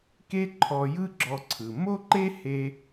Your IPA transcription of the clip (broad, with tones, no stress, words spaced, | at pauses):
ke˥ǃʰɔ˧jɯ˥ ɡ͡ǁɔ˧ǀʰɯ˩ mo˥ǃe˥ he˥